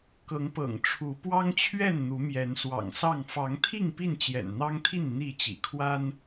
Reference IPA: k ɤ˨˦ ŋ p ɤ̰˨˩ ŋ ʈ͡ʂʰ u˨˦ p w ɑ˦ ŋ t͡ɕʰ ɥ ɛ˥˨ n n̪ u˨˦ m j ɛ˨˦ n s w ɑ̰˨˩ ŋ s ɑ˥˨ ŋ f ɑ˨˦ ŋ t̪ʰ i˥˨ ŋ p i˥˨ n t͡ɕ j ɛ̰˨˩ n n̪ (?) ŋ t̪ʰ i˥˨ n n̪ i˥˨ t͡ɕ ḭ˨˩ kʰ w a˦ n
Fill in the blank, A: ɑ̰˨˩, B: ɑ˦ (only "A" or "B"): B